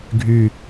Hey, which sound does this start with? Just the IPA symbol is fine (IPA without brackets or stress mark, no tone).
ɡʱ